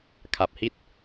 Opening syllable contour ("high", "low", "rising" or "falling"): low